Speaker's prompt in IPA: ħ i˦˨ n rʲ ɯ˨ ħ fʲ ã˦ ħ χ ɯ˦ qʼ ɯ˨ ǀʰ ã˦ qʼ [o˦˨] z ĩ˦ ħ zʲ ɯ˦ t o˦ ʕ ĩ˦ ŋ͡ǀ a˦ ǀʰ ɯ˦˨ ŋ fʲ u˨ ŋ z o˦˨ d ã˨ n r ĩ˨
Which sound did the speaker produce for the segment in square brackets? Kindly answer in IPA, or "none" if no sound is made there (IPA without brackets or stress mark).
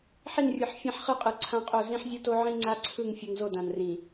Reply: o˦˨